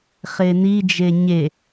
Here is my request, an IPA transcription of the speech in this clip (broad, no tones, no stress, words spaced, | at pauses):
χenid͡ʒe ɲe